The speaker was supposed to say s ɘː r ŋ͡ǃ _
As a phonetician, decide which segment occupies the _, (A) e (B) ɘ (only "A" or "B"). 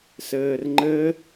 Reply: B